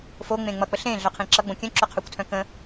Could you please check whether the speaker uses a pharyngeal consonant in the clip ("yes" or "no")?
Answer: no